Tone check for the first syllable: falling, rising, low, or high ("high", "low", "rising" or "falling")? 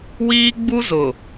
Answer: high